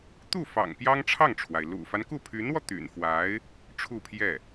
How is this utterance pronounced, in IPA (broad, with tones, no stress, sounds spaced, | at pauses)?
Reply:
t̪ u˥˩ f ɑ̰˨˩ ŋ p j ɑ˥ ŋ ʈ͡ʂʰ ɑ˥˩ ŋ ʈ͡ʂʰ w a˩ ɪ̯ l ṵ˨˩ f a˦ n k u˥˩ pʰ y˧˥ n w ɔ˧ t̪ y̰˨˩ n f w a˧˥ ɪ̯ | ʈ͡ʂʰ u˥˧ pʰ j ɛ˥˩